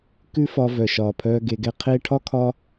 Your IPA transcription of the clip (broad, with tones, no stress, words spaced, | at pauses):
kʉ˦ fɒː˧ vœ˨ʃɒː˨pʰœː˧ ɡe˧ɡɛ˦ qʰeː˦ ʈʰɒ˦ kʰɒ˦